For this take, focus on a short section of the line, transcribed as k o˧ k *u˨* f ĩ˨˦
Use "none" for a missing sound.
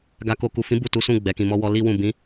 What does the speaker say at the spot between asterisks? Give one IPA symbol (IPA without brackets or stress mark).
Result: u˨